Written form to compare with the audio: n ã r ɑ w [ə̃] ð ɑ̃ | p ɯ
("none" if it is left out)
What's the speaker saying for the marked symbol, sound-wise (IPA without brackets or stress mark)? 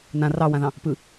ã